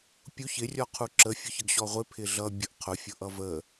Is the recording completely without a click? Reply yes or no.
no